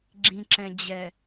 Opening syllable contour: low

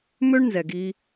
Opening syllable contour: high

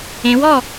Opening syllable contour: rising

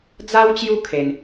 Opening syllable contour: high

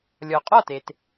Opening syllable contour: low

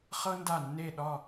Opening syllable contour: high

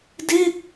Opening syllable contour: falling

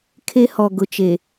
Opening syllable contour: high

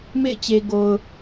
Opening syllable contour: falling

